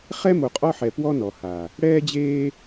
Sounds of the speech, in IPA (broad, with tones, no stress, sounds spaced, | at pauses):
χ ɛ˦ m o˨ qʼ ɔ˦ ħ ɛ˨ p w ɔ˦ n ɔ˨ h a˨ | ɽ ɛː˦ d͡ʑ eː˦